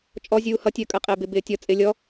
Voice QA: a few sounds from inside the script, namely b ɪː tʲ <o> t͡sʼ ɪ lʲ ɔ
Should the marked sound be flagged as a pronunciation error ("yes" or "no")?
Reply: yes